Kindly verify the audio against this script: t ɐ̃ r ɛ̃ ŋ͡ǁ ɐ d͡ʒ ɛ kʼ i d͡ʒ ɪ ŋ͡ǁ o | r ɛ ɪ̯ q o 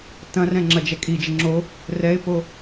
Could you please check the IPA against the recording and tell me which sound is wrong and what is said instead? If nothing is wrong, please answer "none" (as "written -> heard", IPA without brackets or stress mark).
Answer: q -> p